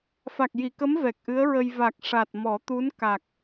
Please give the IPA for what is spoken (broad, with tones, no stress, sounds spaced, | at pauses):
f a˨˩ k̚ j i˨˩˨ k ə˧˥ m v ɛ˨˩ k̚ ʔ ɨ˧˥ ə̯ ɹ ə˧ j v a˨˩ k̚ ʂ a˨˩ t̚ m ɔ˨˩˦ t̪ u˧˥ n k a˨˩ k̚